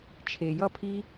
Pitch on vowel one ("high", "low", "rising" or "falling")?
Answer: low